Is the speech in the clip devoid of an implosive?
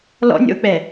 yes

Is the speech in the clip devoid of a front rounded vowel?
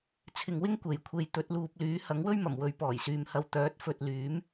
no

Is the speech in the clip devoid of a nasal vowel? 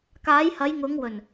yes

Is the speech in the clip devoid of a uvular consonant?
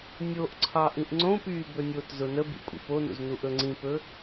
yes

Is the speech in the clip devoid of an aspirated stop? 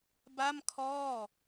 no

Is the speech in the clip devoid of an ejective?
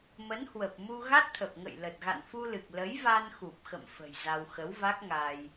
yes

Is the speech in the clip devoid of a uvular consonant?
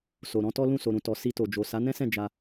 yes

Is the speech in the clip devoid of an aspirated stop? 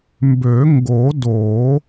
yes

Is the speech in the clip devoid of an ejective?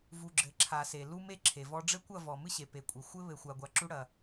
no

